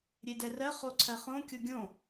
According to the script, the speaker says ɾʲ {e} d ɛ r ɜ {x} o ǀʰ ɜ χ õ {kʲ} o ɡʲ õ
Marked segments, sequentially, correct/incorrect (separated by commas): correct, incorrect, correct